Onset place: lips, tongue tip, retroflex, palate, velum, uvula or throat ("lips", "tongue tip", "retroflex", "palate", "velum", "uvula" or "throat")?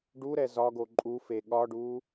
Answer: retroflex